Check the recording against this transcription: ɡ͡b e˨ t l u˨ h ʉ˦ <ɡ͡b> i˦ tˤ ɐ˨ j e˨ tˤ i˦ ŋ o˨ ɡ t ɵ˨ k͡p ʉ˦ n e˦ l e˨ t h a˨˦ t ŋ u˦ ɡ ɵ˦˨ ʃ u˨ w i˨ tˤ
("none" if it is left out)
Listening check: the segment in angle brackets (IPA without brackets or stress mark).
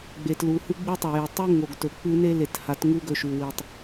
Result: ɡ͡b